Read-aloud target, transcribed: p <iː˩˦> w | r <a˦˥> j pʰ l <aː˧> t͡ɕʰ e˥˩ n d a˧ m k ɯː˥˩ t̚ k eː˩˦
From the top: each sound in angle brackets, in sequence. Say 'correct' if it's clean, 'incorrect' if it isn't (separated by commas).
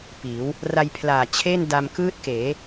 correct, incorrect, incorrect